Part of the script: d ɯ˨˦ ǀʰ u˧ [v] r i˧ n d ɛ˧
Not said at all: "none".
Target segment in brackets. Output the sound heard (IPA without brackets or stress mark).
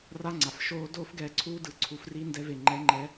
f